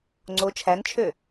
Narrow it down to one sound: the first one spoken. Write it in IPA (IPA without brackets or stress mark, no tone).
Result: ŋ͡ǀ